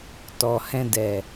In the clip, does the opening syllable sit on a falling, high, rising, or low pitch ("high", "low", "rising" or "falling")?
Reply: low